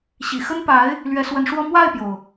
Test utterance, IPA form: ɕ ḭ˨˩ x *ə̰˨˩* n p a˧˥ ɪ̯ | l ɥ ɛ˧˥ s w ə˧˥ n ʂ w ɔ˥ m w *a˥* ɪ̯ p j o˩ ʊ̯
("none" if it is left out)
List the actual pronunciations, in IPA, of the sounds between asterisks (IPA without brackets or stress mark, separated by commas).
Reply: ə˥, a˥˩